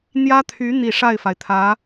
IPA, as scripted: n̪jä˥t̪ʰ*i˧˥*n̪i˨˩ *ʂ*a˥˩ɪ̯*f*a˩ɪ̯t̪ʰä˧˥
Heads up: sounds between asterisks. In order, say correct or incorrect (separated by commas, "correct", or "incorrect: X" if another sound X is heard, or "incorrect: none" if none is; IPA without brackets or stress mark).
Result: incorrect: y˧˥, correct, correct